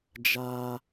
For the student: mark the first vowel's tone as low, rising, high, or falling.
high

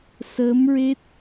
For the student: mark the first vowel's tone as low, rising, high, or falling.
rising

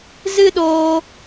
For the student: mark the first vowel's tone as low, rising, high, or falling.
high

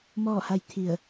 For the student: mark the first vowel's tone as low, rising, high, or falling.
falling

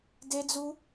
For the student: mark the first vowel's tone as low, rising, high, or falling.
high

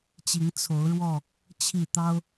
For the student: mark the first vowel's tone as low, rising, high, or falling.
rising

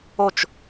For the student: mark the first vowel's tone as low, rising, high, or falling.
falling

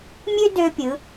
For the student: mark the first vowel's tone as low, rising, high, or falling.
high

